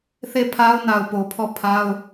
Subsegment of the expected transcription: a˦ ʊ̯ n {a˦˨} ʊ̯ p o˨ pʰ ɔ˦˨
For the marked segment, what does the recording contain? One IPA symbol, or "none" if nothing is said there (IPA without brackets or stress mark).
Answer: a˨